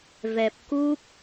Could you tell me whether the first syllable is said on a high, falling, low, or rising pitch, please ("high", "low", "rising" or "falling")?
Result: low